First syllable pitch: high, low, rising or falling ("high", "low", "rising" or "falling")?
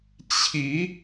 rising